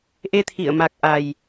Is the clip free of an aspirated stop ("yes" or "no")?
no